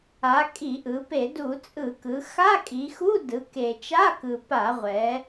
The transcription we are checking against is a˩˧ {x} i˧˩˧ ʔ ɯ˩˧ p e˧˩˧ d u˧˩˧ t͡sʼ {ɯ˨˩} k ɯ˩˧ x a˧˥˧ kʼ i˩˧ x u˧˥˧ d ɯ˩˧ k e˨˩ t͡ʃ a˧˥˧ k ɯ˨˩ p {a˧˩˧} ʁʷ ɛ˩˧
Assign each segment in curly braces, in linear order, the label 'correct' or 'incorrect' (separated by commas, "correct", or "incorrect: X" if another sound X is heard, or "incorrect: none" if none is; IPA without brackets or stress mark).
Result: incorrect: kʼ, incorrect: ɯ˧˩˧, correct